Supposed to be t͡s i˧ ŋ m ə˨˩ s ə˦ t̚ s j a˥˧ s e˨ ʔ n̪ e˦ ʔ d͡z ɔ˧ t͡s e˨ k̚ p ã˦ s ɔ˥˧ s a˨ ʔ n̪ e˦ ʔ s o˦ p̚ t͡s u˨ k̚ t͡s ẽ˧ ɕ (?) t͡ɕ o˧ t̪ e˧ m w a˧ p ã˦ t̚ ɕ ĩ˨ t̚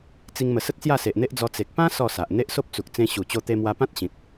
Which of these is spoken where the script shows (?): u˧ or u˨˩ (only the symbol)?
u˨˩